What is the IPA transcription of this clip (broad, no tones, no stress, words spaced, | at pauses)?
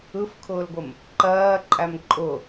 ɯfkʰʊːlɡʷəm | ǃɜːǃʼæm ǃʼʊ